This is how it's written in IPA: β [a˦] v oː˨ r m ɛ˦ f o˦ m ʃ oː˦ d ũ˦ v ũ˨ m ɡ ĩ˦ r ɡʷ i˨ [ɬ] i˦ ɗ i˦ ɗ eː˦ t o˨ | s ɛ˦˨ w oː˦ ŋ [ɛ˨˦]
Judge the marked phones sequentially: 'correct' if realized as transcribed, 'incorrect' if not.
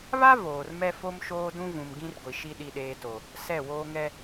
correct, incorrect: ʃ, incorrect: ɛ˦

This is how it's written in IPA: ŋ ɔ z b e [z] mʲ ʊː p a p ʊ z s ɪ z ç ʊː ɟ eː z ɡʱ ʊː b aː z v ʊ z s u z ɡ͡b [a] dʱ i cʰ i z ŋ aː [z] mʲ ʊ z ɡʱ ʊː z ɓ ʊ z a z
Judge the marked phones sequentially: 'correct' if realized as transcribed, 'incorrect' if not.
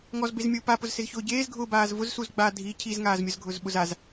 correct, incorrect: aː, correct

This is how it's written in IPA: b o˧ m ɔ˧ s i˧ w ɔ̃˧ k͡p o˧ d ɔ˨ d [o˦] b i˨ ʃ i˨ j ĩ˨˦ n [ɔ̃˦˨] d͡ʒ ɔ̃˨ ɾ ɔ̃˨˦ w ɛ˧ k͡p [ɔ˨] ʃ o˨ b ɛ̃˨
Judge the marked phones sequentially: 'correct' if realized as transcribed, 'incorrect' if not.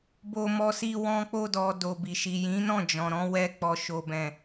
incorrect: o˨, correct, correct

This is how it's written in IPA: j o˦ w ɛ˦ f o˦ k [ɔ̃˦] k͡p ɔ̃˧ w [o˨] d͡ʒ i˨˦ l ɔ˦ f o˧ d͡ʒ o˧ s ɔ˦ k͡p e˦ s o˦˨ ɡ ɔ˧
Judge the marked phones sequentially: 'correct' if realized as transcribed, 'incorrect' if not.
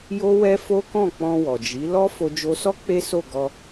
incorrect: ɔ̃˦˨, incorrect: ɔ˨

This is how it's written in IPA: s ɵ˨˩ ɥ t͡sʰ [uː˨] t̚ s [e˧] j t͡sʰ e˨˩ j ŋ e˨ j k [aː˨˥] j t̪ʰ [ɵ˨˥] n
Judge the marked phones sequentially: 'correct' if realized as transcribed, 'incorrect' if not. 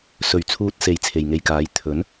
correct, incorrect: e˨˩, correct, correct

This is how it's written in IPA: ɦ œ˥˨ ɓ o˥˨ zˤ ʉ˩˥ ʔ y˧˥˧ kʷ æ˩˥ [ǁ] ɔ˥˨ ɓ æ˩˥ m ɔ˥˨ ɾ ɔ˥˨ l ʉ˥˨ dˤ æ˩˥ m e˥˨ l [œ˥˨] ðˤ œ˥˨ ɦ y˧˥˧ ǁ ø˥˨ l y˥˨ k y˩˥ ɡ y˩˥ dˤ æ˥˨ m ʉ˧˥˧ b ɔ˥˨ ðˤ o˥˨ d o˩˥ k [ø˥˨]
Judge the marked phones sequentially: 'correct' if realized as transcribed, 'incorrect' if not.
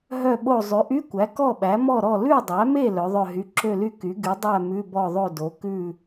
incorrect: k, incorrect: œ˩˥, incorrect: ʉ˥˨

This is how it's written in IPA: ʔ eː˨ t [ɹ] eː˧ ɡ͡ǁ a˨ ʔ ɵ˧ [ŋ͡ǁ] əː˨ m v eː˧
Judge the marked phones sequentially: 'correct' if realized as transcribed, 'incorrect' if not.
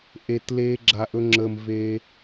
incorrect: l, correct

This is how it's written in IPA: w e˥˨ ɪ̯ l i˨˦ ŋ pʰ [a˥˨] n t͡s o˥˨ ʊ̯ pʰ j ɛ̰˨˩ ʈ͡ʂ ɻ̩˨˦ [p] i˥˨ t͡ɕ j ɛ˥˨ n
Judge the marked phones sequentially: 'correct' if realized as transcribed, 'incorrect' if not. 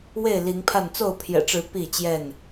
correct, correct

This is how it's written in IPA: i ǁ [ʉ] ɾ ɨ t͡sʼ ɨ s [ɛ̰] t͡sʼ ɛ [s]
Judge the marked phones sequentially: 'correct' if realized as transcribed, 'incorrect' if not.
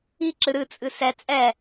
incorrect: ɨ, incorrect: ɛ, incorrect: none

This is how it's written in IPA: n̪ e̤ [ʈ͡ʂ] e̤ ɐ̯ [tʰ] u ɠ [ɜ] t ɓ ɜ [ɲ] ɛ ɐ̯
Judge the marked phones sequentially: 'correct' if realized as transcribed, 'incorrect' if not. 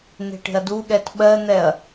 incorrect: ʈ, incorrect: d, incorrect: ɛ, incorrect: n̪

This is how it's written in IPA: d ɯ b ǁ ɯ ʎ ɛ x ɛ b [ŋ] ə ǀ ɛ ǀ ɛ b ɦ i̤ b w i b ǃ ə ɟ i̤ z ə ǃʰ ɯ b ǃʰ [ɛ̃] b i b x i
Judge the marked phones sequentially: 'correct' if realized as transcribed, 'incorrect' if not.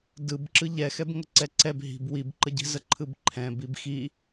correct, correct

